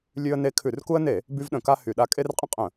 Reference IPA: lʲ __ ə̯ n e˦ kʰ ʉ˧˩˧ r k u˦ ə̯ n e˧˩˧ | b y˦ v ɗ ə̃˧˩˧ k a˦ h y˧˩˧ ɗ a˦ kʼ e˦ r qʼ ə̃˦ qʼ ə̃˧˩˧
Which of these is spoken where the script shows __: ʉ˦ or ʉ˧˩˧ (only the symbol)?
ʉ˦